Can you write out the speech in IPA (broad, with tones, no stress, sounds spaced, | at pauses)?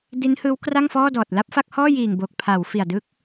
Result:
d i˦˥ n h ɯː˦˥ w k r a˥˩ ŋ f ɔː˥˩ d ɔː˨˩ t̚ l a˥˩ p̚ f a˥˩ k̚ h ɔː˥˩ j iː˨˩ ŋ b o˨˩ k̚ pʰ a˩˦ w f i˨˩ a̯ d ɯ˦˥ k̚